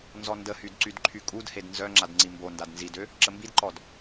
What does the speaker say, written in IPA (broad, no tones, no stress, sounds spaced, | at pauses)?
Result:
n z ɔ n d ə h y d ǀ y d ǃʰ y kʼ u d h e d n z œ ŋ͡ǁ a d ŋ͡ǀ i m b o n d a d n z i d ø | ǁ ə m b i d ǃ ɔ d